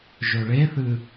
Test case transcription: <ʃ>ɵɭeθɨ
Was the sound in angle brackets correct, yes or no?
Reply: no